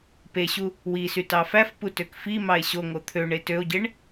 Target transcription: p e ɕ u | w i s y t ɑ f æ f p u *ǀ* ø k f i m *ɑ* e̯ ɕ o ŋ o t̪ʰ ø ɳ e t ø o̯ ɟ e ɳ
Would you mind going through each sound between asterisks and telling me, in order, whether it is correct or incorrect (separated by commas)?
incorrect, correct